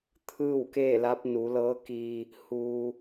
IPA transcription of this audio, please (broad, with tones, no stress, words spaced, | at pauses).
t̪ʰɯː˥˨wkeː˥˨la˧˥p̚ nu˩˧lɤː˧˥kiː˧ | huː˩